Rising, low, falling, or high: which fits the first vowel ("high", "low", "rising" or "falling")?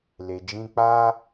low